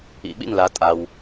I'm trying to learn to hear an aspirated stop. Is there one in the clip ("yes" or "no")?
no